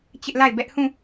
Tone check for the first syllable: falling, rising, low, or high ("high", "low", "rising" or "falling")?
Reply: high